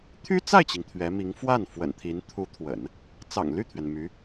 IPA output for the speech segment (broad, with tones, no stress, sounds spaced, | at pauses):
t̪ʰ y˥ t͡s a˥˩ ɪ̯ t͡ɕ i˩ ŋ t̪ʰ ɥ ɛ˧˥ m i˧˥ ŋ f w a˥˩ n f w ə̰˨˩ n t̪ʰ i˧˥ n t̪ʰ u˧˥ t̪ʰ w ə̰˨˩˦ n | t͡s ɑ̰˨˩ ŋ l y˥˩ t̪ʰ ɥ ɛ˩ n m y˧˥